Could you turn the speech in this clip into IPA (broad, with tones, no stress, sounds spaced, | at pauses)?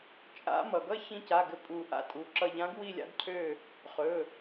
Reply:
t͡ʃʼ a̰˧˥ m ʌ˩ ɡ ʌ˥˨ ç ĩ˧ c a˩˧˩ ɡ ɘ˧ pʼ u˨˩˦ ʔ a̰˥˨ tʼ u˩˧˩ ǁ ʌ˥˨ ʎ ã˧˥ ɡ w i˥˨ lʲ a̰˧˥ d cʰ ø˥˨ | χ ɵ˩˧˩